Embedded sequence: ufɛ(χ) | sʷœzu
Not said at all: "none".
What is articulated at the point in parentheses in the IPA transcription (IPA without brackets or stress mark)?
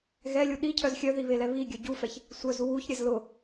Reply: ç